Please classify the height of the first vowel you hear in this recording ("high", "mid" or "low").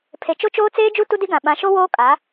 mid